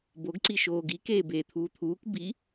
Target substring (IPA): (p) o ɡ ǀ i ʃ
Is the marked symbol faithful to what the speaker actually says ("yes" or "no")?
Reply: no